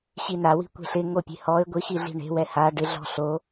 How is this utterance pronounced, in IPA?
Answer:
ɕinawi̤ kʷe̤ɬɪŋo pʲe̤hɔɪ̯ ɡʷixiɮi̤ ɳe̤wɛ ha ɖɪɮɔ̤ ɬo

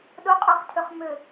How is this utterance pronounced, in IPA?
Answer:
ɗʊqʼøχtʰʏχ mʏ

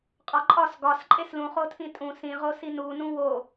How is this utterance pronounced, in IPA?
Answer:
qʼɒǃʼɒs ɡɒs ǃʼeslũχotʰĩ tʼũ sĩʁosi nunũ wo

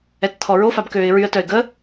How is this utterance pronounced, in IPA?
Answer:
ɛtt̪ʰɔɹo fabkøːɪ̯ɹyə̯ tœɪ̯ɡə

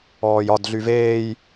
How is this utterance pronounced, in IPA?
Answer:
ɔːjɒd ɮyveːj

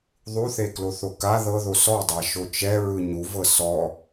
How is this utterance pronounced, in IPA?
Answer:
ðˤuθe kloθoka ðɤðo sɔdˤa ʃot͡ʃɛɹɯ ɲuvɤ sɔ

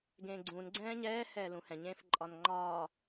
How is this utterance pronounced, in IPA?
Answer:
ɡẽːɡ͡ǀũːn ɡ͡ǀɛ̃ːɲɛː hɛːlũhɛ̃ ɲẽːfǃʼɒnŋ͡ǃɒː

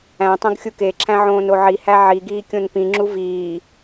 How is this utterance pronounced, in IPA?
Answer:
æ̃tˤõɡ xʲukeǁʰæ̃ ʕõːnoʕihæ ʕiɡiː kʲõnpĩŋ͡ǁu viː

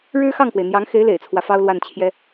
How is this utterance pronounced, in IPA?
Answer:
ɻɻ̩˥xɑ˥˩ŋkwe˩ɪ̯ n̪jɑ˧˥ŋxe˧˥ɪ̯ lḛ˨˩ɪ̯t͡sʰwä˦fɑ˥ʊ̯lwa˥˩n t͡ɕʰjɛ˥

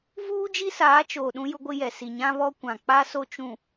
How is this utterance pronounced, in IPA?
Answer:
vuː˦ d͡ʒi˦saː˨˦t͡ʃoː˨ ɗũ˦jʊ˦ɡʷɪ˦jɛ˨ si˨ɲã˦βɔ˦ kʷã˨ k͡pa˦ so˦ t͡ʃũ˨

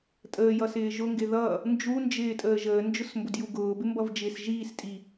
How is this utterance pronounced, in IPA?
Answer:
tʼəːjʌsɪː ʒʊŋɡɪ ðʌː | nd͡ʒund͡ʒɪːtʼəː ʒəːnd͡ʒʊsmbʊdju ɡʊːbɪmbʌvd͡ʒɪːs ʒiːstʼi

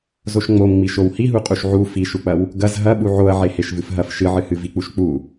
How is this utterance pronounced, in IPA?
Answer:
zoʃŋ͡momŋ͡miʃow hiɦuqʼuʃ ʕu fiʃuk͡pɐw | ɡɐz ɦɐ ɓuʕoɐ̯ʕe heʃvɨfɦɐf ʃɨʕɨhɨ vik͡puʃk͡pu

